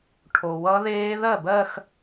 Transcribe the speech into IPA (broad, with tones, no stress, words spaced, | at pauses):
ʈʰo˩wʌ˦˥ðeː˦˥ ðɜ˥˩bɜ˥˧x